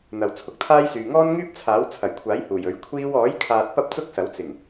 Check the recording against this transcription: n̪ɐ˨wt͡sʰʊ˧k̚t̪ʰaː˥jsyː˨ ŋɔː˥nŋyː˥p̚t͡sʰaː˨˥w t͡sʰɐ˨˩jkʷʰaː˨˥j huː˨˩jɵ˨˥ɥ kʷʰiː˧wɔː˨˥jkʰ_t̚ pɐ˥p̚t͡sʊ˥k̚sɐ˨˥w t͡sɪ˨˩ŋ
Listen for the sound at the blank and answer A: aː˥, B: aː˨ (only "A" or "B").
B